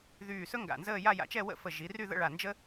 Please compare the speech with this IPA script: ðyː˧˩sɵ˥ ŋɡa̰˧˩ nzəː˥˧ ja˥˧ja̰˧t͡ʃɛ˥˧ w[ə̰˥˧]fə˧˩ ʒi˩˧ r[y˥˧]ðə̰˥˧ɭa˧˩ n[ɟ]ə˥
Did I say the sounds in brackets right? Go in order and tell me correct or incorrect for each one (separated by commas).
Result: correct, correct, incorrect